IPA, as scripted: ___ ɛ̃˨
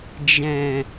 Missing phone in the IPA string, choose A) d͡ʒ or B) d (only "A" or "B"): A